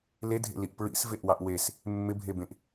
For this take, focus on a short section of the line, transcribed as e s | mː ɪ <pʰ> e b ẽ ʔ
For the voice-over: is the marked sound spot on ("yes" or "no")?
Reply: no